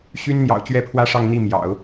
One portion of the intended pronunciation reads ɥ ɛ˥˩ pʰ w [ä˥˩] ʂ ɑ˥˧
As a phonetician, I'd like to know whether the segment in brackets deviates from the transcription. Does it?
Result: yes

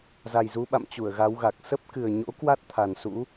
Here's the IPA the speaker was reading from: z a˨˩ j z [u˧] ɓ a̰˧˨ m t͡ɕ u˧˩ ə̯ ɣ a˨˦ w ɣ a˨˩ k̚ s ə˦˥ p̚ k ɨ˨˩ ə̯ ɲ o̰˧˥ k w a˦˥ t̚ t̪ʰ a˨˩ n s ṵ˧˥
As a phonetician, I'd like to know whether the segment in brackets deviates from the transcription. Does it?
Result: yes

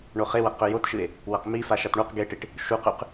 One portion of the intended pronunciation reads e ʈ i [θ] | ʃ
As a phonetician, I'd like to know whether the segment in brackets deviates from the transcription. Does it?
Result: yes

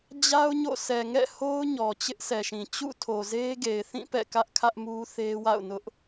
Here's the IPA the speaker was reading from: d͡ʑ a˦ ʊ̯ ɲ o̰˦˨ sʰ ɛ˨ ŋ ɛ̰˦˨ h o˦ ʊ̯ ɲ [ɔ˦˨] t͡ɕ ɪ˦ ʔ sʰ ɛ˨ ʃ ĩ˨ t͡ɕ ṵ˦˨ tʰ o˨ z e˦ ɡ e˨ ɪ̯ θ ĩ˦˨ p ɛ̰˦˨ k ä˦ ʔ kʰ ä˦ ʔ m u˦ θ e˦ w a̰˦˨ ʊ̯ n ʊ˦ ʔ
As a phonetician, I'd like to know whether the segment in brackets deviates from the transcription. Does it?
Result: yes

